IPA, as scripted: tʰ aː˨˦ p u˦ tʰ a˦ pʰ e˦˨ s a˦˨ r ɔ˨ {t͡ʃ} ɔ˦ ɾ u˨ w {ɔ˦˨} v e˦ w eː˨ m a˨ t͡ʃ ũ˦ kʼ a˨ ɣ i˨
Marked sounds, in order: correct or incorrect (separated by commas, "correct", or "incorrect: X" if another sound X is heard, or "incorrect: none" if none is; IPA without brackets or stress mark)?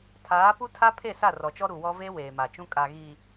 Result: correct, incorrect: ɔ˦